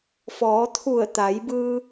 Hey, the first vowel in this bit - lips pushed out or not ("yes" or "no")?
yes